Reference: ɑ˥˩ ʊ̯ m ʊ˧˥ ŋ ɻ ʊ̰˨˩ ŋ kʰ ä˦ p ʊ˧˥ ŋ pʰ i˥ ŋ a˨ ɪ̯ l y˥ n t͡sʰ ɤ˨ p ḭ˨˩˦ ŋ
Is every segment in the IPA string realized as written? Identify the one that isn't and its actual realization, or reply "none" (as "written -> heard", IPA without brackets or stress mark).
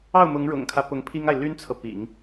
none